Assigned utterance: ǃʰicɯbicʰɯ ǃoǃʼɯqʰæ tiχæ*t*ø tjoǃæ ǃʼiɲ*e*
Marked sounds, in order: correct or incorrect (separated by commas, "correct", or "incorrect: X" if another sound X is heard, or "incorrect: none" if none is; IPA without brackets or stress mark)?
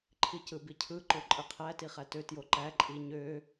correct, incorrect: ø